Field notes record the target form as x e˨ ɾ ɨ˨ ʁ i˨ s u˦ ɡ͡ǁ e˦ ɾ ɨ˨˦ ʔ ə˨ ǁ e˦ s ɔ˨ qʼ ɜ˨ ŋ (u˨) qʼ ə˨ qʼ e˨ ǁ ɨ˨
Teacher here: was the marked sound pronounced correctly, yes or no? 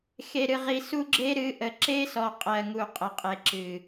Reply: yes